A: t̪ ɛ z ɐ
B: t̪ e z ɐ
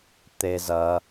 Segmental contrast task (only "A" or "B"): B